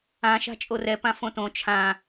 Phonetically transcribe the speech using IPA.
ã ʃ a̤ t͡ʃʼ o r ɛ p ã f õ t õ t͡ʃʰ ã

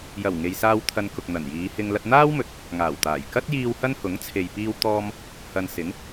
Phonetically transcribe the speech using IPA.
j ɐ˨˩ w ŋ e˨ j s aː˧ w t̪ʰ ɐ˧ n k ʊ˨ k̚ n̪ ɐ˨˩ n j iː˨˧ h ɪ˧ ŋ l ɐ˧ t̚ n̪ aː˥ w m ɵ˨ t̚ | ŋ aː˨˩ w t̪ aː˨˩ j k ɐ˥ t̚ j iː˧ w h ɐ˥ n h ʊ˨˥ ŋ t͡sʰ e˨ j p iː˧ w t̪ ɔː˧ m | h ɐ˧ n s ɪ˨˥ ŋ

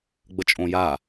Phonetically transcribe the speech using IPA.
ɡ͡b ə t͡ʃʼ õ j a

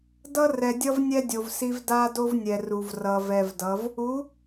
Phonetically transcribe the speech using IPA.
d ʌ˦ r ɛ˨ dʲ ʌ˦ v nʲ ɛ˦ dʲ o˨ v s i˦ v d a˦ d o˦ v nʲ ɛ˨ r u˨ v r ʌ˨ v ɛ˨ v d ʌ˨˦ v | u˨˦

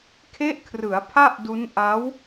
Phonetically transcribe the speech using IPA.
kʰ e˦˥ ʔ kʰ r ɯ˩˦ a̯ pʰ a˥˩ ʔ d u˦˥ n ʔ a˦˥ w

